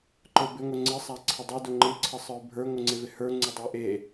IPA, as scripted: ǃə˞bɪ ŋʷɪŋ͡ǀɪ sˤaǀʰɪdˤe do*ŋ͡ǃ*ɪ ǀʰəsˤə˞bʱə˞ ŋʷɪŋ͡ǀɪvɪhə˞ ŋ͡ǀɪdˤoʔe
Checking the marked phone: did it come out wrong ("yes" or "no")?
no